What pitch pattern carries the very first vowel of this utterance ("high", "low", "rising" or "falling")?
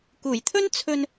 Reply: low